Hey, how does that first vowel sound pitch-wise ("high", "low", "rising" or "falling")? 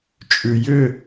low